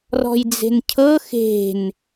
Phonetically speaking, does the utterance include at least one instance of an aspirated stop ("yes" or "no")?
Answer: yes